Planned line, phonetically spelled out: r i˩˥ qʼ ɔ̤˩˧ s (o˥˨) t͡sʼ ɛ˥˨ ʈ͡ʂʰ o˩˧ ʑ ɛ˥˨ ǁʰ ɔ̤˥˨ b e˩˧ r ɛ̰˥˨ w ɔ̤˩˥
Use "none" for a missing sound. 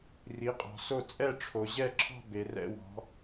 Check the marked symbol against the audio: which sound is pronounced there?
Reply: o˥˨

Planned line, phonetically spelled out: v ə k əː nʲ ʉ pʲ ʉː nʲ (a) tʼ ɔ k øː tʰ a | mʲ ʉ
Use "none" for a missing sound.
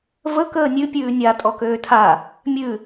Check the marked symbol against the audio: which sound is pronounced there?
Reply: a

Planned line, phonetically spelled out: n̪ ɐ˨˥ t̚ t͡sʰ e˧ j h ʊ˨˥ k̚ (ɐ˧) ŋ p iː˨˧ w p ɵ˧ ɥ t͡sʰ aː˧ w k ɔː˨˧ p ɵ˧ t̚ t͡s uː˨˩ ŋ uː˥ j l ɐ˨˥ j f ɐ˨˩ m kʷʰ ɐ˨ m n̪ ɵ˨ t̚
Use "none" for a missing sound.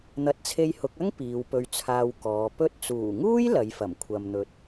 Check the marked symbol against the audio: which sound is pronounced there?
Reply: ɐ˥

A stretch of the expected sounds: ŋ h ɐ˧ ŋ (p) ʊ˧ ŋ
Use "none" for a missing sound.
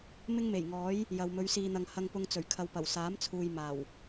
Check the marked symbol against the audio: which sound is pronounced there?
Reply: p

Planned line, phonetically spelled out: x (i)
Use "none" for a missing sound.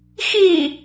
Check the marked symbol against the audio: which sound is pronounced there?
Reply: i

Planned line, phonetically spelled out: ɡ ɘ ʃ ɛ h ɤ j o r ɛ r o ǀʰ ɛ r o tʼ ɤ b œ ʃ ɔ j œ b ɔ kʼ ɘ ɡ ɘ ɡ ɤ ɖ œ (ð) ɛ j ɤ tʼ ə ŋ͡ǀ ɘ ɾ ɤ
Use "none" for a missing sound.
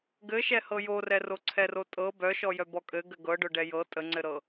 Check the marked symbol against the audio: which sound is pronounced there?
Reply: ɖ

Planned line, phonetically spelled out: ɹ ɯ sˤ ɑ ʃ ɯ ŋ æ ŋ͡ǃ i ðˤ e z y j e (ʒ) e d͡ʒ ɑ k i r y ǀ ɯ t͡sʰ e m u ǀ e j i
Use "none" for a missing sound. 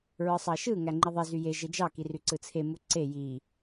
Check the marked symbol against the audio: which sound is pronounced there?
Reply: ʒ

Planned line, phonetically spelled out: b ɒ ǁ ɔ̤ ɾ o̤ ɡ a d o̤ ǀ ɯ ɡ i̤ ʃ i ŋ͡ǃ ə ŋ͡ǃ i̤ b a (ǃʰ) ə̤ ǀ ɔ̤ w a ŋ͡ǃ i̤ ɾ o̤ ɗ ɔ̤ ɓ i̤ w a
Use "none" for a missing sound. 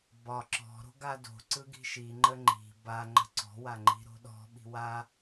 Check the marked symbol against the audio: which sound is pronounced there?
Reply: ŋ͡ǃ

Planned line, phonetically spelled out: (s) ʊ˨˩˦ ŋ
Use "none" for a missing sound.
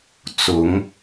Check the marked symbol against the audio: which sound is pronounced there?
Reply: t͡s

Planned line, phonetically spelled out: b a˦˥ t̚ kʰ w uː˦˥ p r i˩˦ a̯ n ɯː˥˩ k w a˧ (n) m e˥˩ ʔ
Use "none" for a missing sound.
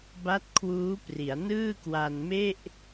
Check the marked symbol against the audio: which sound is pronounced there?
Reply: n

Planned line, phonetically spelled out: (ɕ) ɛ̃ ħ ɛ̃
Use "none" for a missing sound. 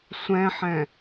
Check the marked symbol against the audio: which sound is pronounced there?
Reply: sʷ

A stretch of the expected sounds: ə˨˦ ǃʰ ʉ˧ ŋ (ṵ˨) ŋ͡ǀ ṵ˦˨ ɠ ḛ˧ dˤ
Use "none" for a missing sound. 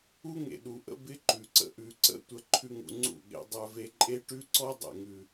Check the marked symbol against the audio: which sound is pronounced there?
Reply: ṵ˨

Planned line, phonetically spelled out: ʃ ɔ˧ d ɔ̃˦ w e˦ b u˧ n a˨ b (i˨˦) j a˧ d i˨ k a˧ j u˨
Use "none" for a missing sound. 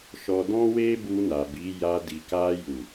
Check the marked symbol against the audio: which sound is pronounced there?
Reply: i˨˦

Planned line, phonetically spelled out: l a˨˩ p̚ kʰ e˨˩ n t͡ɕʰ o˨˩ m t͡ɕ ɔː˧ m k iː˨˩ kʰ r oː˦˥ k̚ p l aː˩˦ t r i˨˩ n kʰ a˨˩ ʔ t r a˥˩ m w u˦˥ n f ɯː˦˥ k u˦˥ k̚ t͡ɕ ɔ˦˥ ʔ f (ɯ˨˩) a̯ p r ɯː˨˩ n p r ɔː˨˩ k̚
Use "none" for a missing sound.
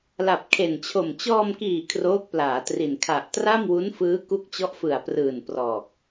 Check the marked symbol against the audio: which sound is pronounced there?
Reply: ɯ˨˩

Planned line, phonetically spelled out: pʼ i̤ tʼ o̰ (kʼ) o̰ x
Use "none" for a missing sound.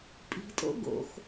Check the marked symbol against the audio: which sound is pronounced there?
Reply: ɡ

